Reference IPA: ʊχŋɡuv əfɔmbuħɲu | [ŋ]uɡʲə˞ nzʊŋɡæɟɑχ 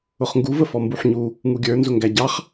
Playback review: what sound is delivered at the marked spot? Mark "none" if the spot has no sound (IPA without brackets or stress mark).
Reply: ŋ